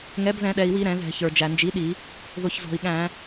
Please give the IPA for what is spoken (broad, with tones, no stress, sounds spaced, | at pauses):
ŋ ɛ˩˥ b ð ɛ̃˧˩˧ ɗ ɛ˩ i̯ w i˧˩˧ ɾ ɛ̃˧˩˧ ð ɛ̤˧˩˧ ç ə˞˩ d͡ʒ æ˩ n d͡ʒ i˩˥ ɗ i˧˩˧ | ð ʊ˩ ç z ɔ̤˩ i̯ ɠ æ̃˧˩˧